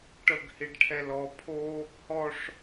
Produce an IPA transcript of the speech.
ʈ ɤ ɡ h i ɖ ʈʰ ɛ l ɔ pʰ o | h ɔ ʂ

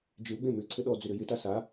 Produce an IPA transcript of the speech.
d͡ʒ ɪ w ɡ͡b ẽ m ʏ ǀʰ ɘ ɗ ɔ d͡z ʏ ɾ ɘ j ɪ t a s a

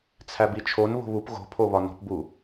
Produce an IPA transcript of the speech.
t͡sʰ æ b i t͡ʃʰ o n β o̤ β u p ɣ o̤ pʰ o β ɒ n o̤ p b u

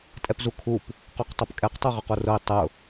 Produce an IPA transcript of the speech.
tʼ ɛ p z u kʰ u p | q o q tˤ o p kʼ ɛ q tˤ o ʁ ʊ q o r ʊ i̯ tˤ ʊ

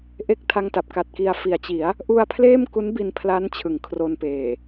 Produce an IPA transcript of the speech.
ʔ e˦˥ k̚ tʰ a˥˩ ŋ t a˦˥ p̚ k a˨˩ t̚ k i˧ a̯ f i˩˦ a̯ t͡ɕ i˩˦ a̯ | ʔ u˧ a̯ pʰ l eː˥˩ m k u˦˥ n b i˧ n pʰ l a˦˥ n t͡ɕʰ ɯ˩˦ ŋ kʰ r o˧ n p eː˨˩

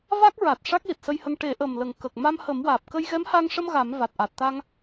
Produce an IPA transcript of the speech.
v a˦˥ k̚ ɹ a˨˩ t̚ ʂ a˦˥ k̚ l i˨˩ t̚ s ə˧ j h ə˧ ŋ ʈ e˨˩˦ ʔ ə˨˩ m l ə˨˩ ŋ k ə˨˩ k̚ m a˧ m h ə˨˩˦ m w aː˨˩ p̚ k ə˧ j ɣ ɛ˧˥ m h a˧ ŋ ʂ ə˧ m ɣ a˨˩˦ m v a˨˩ t̚ ʔ a˨˩ t̚ t̪ a˧ ŋ

